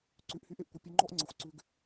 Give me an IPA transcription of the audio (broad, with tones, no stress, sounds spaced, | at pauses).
ǀ ʉ˧˩ ʔ h y˥ ʔ e˥ ʔ kʷ ə˩˧˩ pʲ ə˧ ŋ͡ǃ ɔ˥ ʔ ŋ͡ǀ ə˩˧˩ xʷ ǀ ʉ˧ ɡ